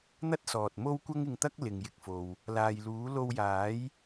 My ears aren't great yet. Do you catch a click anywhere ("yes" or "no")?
no